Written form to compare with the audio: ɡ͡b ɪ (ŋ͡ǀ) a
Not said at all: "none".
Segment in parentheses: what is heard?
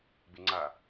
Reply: ŋ͡ǀ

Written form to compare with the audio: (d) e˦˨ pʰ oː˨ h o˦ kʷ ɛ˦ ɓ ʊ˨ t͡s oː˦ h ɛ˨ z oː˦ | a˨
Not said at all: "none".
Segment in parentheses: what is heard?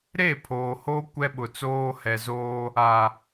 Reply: ɾ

